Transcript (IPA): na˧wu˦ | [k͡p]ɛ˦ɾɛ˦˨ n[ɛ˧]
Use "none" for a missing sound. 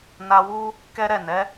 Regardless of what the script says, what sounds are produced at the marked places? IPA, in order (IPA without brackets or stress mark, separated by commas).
k, ɛ˨˦